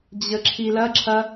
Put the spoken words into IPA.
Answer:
d͡ʑ ə ǁʰ i l ɐ ǁʰ ɐ

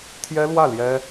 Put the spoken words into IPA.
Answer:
t̪ʰ j ɛ˥ l w ä˥˩ l j ɛ˥

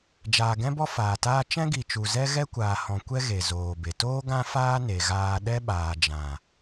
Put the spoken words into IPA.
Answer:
d͡ʒ aː˨ ɡ ɛ̃˦ b ɔ˦ f aː˨ t aː˦ t͡ʃ ɛ̃˦ ɡ i˨ t͡ʃ u˨ z ɛ˦ ɣ ɛ˦ kʷ aː˨ h ɔ̃˨ kʷ ɛ˦ ɣ e˨ z oː˨ b e˨ t oː˦ ɡ ã˦ f aː˦ n e˧ ɣ aː˦ ɗ ɛ˦ ɓ aː˨ d͡ʒ ã˨

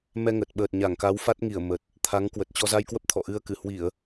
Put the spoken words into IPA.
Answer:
m ɛ˧ ŋ ə˨˩ t̚ ɓ əː˨˩ t̚ ɲ a˧˩ ŋ k a˨˦ w f a˦˥ t̚ ŋ i˧˩ ə̯ m ə˨˩ t̚ | t̪ʰ a˨˦ ŋ k w ə˨˩ t̚ t͡ɕ ɔ˧ z a˧ j k w ə˦˥ p̚ t̪ʰ ɔ̰˧˨ ʔ ɨ˧ ə̯ k ɨ˧˩ h w i˧˩˨ ə̯

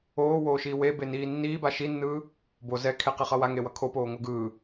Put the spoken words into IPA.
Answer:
oː w oː ʃ iː w e b e n iː nː iː b a ʃ i nː ɯː | b o z ɛ kʰ e q i χ ʌ w a ŋ e w ʌ kʰ o p oː ŋ o ɡ ɯː

